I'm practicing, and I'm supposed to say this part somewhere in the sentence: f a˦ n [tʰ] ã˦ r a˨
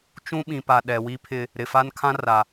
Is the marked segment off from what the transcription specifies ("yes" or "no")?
yes